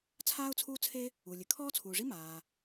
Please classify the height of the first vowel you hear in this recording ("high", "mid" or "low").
low